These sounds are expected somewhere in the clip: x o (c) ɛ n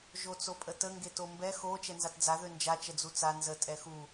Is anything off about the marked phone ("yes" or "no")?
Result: yes